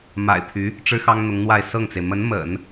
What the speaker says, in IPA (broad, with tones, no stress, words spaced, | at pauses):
ma̰˨˩ɪ̯pʰy˧˥ | ʈ͡ʂɻ̩˥ xɑ˥ŋn̪ʊ˧˥ŋn̪wa˥˧ɪ̯ sɤ˥˩ŋt͡se˩ɪ̯ mə˧˥nmə̰˨˩˦n